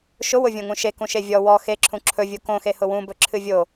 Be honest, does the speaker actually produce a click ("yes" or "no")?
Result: yes